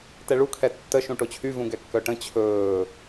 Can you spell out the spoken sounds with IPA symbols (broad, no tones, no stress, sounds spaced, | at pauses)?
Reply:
t ɛ ɭ u kʰ ɛ tː ə ʃ ũ ʈ o t͡ɕʰ y v ũ ɡ ɛ kː œ ʈ ə̃ t͡ɕʰ ɵː